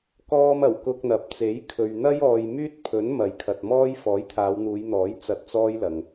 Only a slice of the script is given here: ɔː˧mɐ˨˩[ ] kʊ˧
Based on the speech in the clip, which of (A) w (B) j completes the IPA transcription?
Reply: A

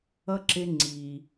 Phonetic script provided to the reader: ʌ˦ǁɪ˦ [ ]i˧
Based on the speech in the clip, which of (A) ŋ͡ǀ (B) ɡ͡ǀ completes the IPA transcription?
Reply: A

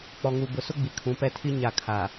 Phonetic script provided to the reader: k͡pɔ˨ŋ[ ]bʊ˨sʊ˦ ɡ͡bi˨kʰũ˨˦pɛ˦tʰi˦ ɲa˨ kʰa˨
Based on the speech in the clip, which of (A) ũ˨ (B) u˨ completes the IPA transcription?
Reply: B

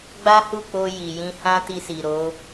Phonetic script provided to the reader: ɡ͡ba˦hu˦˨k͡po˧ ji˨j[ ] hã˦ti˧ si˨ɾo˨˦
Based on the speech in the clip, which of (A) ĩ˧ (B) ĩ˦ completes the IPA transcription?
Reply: A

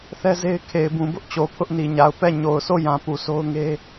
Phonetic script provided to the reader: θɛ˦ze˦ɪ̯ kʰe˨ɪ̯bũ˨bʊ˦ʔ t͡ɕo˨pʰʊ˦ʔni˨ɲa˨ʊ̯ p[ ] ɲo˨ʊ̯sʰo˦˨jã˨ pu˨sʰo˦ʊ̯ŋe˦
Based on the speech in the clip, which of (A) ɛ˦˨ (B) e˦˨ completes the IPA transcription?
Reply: A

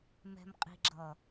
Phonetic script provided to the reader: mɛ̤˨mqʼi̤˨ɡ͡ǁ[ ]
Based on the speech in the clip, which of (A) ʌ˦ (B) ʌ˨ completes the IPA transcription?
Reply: B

